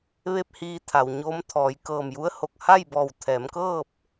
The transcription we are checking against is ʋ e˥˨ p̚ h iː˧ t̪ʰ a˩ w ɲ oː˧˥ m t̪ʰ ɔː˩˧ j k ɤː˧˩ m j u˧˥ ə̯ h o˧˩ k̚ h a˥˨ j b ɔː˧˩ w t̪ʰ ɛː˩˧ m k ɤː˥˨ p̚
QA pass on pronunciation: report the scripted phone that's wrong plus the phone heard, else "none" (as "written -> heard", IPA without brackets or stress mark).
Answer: none